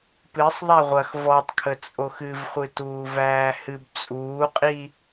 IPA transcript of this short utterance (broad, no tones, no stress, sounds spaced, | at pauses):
p ɨ sˤ ðˤ æ ʁʷ ɐ x v ɔ tˤ kʰ ə t͡sʼ o x ɨ v χʷ ɨ t uː v æː h ɨ b t͡sʼ uː qʼ i